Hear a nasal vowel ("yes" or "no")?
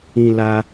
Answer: yes